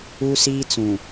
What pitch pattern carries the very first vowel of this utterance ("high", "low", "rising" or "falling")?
high